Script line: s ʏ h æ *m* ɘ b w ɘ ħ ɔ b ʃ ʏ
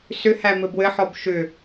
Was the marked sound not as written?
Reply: no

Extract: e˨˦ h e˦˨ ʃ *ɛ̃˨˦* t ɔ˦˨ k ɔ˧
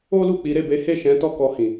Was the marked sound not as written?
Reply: no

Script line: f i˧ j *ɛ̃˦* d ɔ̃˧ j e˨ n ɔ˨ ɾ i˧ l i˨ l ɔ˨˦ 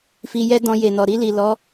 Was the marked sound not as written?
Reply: yes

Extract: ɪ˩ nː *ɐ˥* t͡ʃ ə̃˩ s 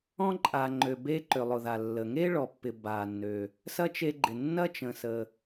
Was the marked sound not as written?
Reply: no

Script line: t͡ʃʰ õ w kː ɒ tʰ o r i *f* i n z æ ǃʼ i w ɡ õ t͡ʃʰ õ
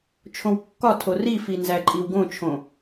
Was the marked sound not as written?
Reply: no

